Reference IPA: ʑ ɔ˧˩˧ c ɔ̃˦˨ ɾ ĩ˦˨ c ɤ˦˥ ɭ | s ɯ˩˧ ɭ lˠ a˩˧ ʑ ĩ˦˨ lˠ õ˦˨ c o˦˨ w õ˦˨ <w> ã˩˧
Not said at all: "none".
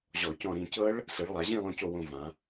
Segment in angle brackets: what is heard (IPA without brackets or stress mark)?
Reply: v